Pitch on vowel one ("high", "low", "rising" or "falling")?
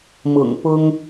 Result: low